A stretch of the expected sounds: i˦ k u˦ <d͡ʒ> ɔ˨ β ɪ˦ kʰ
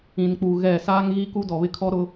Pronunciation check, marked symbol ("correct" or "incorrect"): incorrect